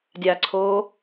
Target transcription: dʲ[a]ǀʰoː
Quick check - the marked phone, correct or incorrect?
correct